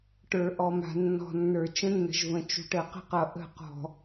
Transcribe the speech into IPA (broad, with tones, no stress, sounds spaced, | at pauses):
ʈ ə˞˨ ʔ ɔ˨ m a̤˨ nː ɔ̤˨ nː ə˞˨ t͡ʃ ə̃˦ nː ə̤˨ ʒ v ə̃˨ t͡ʃ ṳ˨ ʈ ə˨ q ə̤˦ q ʌ˨ ʔ ə̤˦˨ q ɔ̤˨